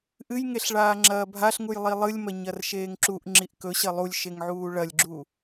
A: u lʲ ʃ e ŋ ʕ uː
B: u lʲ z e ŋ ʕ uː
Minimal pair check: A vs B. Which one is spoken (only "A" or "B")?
A